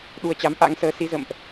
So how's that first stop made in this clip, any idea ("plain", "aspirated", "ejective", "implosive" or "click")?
implosive